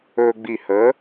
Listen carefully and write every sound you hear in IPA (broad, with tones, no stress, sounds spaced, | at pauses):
ɵː˧ ɡ͡b i˧˩ h ə˨˥